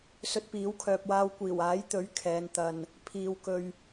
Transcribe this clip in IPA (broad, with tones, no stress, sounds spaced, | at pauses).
s ɵ˧ t̚ p iː˨˥ w kʰ œː˨ p̚ w aː˧ w kʷ iː˨˩ w aː˨˥ j t̪ ɵ˨˥ ɥ kʰ ɛː˨˧ n t̪ ɐ˧ n | pʰ iː˧ w k ɵ˧ ɥ